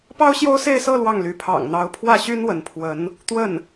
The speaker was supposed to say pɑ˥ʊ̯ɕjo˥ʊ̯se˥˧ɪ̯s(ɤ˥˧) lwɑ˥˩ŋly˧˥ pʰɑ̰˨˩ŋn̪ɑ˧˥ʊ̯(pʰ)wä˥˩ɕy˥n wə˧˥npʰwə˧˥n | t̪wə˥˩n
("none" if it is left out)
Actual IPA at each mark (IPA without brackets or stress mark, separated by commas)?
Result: ɤ˥˧, pʰ